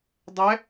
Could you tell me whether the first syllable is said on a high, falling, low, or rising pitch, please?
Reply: rising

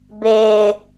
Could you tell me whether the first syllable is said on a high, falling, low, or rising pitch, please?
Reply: low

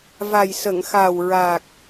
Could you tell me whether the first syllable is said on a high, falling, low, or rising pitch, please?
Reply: low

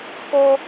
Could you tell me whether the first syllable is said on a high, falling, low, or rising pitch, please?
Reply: high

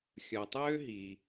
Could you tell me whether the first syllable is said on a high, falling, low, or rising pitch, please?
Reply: low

